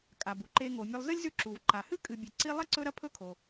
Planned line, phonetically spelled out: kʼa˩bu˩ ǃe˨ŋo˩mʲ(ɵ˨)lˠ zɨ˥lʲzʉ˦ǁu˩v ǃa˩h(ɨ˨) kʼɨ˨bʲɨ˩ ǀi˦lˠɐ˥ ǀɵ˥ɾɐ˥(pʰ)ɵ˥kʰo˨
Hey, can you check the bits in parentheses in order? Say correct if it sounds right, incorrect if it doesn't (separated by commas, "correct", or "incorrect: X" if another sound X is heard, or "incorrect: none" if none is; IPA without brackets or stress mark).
correct, incorrect: ɨ˥, correct